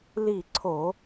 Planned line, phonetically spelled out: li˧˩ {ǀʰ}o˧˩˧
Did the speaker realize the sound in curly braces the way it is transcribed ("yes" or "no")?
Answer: yes